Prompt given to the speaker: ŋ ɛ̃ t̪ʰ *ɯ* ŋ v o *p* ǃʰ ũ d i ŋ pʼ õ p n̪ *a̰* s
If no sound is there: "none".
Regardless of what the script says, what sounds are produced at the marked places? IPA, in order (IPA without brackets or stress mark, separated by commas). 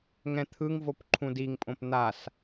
ɯ, p, a